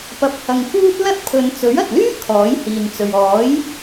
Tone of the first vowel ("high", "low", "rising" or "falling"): rising